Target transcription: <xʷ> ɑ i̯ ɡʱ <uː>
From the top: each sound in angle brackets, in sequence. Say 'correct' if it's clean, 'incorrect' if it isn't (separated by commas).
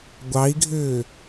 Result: incorrect, incorrect